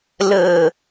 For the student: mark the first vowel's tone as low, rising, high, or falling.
low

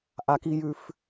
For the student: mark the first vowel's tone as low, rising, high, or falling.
high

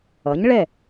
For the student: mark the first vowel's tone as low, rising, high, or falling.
rising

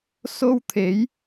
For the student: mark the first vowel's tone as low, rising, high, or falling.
high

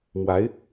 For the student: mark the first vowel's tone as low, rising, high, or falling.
rising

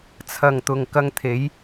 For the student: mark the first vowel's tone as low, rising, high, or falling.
low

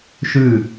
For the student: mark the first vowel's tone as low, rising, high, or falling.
falling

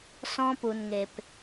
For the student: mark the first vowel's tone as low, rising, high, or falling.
high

